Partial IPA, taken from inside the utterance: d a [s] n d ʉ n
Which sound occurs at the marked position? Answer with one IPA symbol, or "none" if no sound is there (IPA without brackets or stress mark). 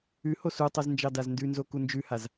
z